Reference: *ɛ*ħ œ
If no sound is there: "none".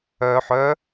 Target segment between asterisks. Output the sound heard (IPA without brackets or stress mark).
œ